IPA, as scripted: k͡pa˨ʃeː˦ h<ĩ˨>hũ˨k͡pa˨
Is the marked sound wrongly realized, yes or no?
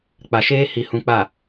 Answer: yes